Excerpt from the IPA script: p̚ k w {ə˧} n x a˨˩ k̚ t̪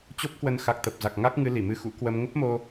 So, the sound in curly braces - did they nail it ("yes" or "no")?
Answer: no